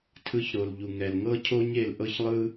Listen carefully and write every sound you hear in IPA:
tʰ ɯ˧ ç ɾ o˨ l ʎ u˨ ŋ ɛ˨ l ŋ ɤ˦ cʰ o˦ ɲ e˧ l ʔ ɤ˦ ç lˠ ɯ˦

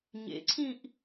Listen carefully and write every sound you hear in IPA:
ɲ ḛ ǀʰ ĩ ʔ

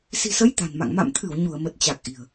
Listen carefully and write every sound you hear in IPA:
s i̤˨˩ s ə˨˦ j t̪ a̤˨˩ n m a̰˧˨ ŋ m a̰˧˨ m t̪ʰ ɨ˧˩ w ɲ u˧˩ ə̯ m ə˨˩ t̚ t͡ɕ a˨˩ k̚ ʔ i̤˨˩ ə̯

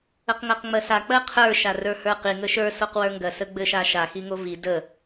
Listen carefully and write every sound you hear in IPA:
ə q ŋ ɜ q ŋ͡m ɜ s a k͡p ɜ qʰ ə˞ ʃ a r ə˞ h ə˞ q i ŋ ə ʃ ə˞ s o q w ə˞ ŋ ɡ ɜ s ə ɡ͡b ɘ ʃ a ʃ a x i ŋ o v i d ə

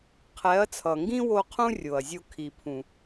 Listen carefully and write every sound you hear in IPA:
qʰ ɛ˨˦ ɐ̯ t͡sʰ ʌ˨ ŋ ɡ ĩ˦ w o˧ qʰ ũ˦ rʲ o˨ ɐ̯ zʲ o˧ kʰ i˨ pʰ ũ˨

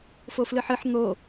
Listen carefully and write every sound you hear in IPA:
f o f l ɨ ħ ɨ ħ n̪ o

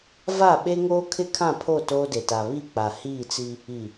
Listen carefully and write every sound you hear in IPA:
v a˦˨ ɓ e˦ ŋ oː˦ kʰ ɪ˦ kʰ ã˦˨ pʰ o˦˨ t oː˦ d e˨ t a˨ β i˦˨ k͡p a˨ h iː˦˨ t͡s i˦ | i˨

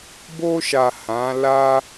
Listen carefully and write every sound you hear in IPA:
b o˧ ʃ a˨ h ã˨˦ l a˦

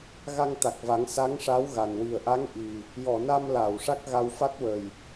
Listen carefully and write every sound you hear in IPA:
ɣ a˧ ŋ t̪ a˨˩ k̚ v a˨˩˦ ŋ s a˧˥ ŋ ʂ a˧˥ w ɣ a˨˩ n w i˨˩ ə̯ ʔ a˧˥ ŋ ʔ i˨˩ | j ɔ˨˩˨ n a˧ m l a˨˩˨ w ʂ a˦˥ k̚ ɣ a˧ w f a˦˥ t̚ w ə˨˩ j

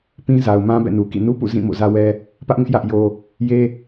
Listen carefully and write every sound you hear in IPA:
p ĩ˦ z a˨ ʊ̯ m ã˦ b ɛ̰˦˨ n u˨ k ḭ˦˨ n u˦ p ṵ˦˨ z ĩ˦˨ m o̰˦˨ z ä˦ w ɛ˦ | p ä˦ ʔ ŋ ɪ˦ ʔ j ä˦ ʔ j o˦ | j e˦

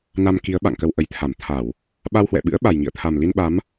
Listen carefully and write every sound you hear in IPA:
n a˧ m k i˨˦ ə̯ ɓ a̰˧˨ ŋ k ə˧ w ʔ ə˨˩ j t̪ʰ a˧˩ m t̪ʰ a˧˩˨ w | ɓ a˧ w h w ɛ̰˧˨ ɓ ɨ̰˧˥ ə̯ ɓ a˨˩ j ŋ ḭ˧˨ ə̯ t̪ʰ a˨˩ m l i˧ n ɓ a˨˦ m

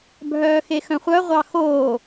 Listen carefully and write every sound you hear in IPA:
bʱ œː x e x œ̃ χʷ œ ʁʷ ɑ x oː

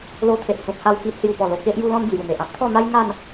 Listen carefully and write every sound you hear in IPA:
l o˧ t̪ʰ e˨ ʔ h ẽ˨ t̚ h a˧ w k i˨ t̚ s j u˨˩ p ɔ˨˩ l o˨˩ k e˦ ʔ j u˧ l ɔ̃˧ n d͡z j u˨˩ n̪ e˨ ʔ ã˦ p̚ t̪ʰ ɔ˥˧ n̪ a˦ j ŋ a˥˧ n

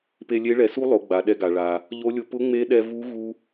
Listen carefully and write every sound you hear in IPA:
p e˧ lʲ e˧˥ ɭ ɛ˩˧ s u˥ lˠ o˩˧ ɡ͡b a˩ ɗ ɛ˧ ɡ a˩ ɭ a˩ | ʎ o˧˥ lʲ ʊ˧ p ʊ˧˥ ŋ͡m e˧˥ ɗ ɛ˧ v u˧˥ ɣ u˥

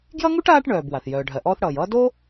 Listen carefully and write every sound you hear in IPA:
ɡ j ʌ˥ ŋ u˥ ʈ aː˦ ʈ ɳ œː˨ b w a˩ θ j œː˩ ɖʱ ɜ˩ ʔ ɔː˦ θ ɽ ʌː˩ j ʌː˥ d o˥

